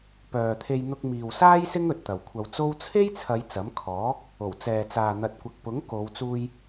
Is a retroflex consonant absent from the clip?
yes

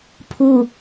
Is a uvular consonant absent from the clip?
yes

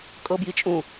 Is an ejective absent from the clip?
no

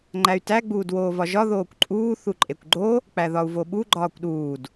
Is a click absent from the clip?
no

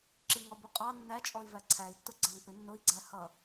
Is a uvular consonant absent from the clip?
no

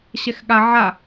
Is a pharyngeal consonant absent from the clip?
no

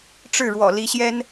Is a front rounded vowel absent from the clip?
yes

